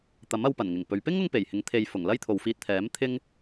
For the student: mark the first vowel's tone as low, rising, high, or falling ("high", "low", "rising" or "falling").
rising